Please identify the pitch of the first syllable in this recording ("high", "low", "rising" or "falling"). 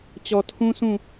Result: low